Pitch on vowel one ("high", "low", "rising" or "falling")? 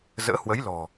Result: rising